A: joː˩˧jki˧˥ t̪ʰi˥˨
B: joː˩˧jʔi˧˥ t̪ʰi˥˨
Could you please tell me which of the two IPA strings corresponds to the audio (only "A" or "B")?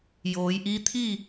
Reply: B